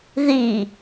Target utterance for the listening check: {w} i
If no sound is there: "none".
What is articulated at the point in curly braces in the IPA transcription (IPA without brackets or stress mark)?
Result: ð